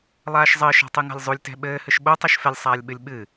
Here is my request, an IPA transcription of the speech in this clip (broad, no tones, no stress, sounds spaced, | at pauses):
lˠ aː ʃ zˤ ɘː ʃ a̤ tˤ ɨ ŋ a̤ lʲ zˤ u lʲ t ɛ̤ ɓ ɘː h ɨ ʃ ɓ o tˤ e ʃ f ɛ lʲ sˤ aː lʲ ɓ ɨ lʲ ɓ ɨ